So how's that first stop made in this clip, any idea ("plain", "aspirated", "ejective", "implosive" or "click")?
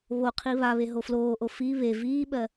aspirated